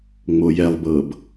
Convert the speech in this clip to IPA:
ŋ͡m o j ɛ lˠ b ɤ b

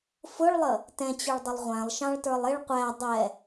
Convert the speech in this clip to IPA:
f ʊ ɭ lˠ ə | t ɛ̃ t͡ɕ ʊ ɭ dˤ ʊ lˠ ʁʷ æ̃ lˠ ʃ ɑ̃ ɭ t ə˞ lˠ ɪ ɭ qʷ æ dˤ ɛ

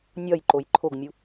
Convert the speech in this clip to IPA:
nʲ ɒ j ǃ o j ǃʰ o ɡ mʲ u

